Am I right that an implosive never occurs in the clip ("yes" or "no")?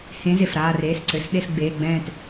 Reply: no